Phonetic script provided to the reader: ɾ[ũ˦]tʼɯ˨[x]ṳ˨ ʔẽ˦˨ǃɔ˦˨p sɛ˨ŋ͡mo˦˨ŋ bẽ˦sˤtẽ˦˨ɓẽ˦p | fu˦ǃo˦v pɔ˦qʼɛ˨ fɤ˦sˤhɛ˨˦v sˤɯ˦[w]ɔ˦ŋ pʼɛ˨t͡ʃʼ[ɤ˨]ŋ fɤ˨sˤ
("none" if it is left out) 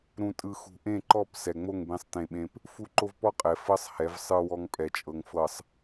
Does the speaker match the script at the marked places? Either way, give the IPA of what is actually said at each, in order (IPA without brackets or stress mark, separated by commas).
ũ˨, x, w, ɤ˨